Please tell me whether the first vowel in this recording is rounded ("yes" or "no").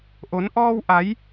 yes